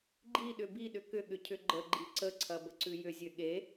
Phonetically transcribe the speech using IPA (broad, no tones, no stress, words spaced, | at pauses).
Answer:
ɡ͡ǃiɗʏ biɗʏ kʏɠʏ cʰʏɡ͡ǃəɡ͡ǃi ǀəǀʰɐ bəǀʉjʏzʲø ɠe